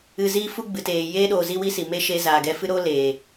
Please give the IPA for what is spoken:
ɨ˧ ziː˦fu˦ ɡ͡bɨ˨teː˨ jeː˧ɗoː˨ zi˦wi˦si˨ me˦ ʃe˧ zaː˨ɡɛ˧ fɨ˦ɾoː˦ leː˨

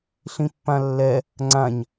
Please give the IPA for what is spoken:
ɬĩpːãlːɛ | ŋ͡ǀãɲ

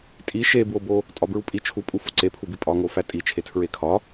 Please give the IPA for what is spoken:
tʼi ʃebwobo | tʼɒbɹupʼi t͡ʃʰupʼufo ǀepʰubi pʼɒŋo fætʼi t͡ʃʰetʰɹekʰɒ

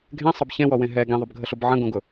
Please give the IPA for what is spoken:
ɡʱẽsˤəb çẽwɔwẽ ɦɛ ɡĩðˤʊbɡʱəɬʊb ʕə̃ɡõɡʊ

